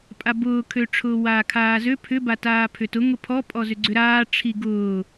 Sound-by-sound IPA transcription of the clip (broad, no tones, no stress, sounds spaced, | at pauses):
pʼ a b ʊː kʰ ø ʈ͡ʂʰ ʊː w aː kʰ aː z ø pʰ ʏ b a t aː pʰ ʏ t ʊ ŋ ʊ pʰ ɔ pʼ ɔ z ʏ ɡ͡ǀ ʏ ɾ aː ʈ͡ʂʰ i ɡ ʊː